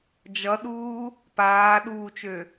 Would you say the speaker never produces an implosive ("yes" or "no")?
no